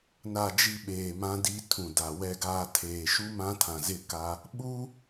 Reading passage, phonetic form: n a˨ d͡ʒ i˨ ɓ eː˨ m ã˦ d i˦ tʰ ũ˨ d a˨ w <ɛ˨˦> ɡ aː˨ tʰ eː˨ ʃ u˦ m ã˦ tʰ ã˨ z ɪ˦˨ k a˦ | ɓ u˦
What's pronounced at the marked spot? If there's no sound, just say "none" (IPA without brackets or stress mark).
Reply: ɛ˨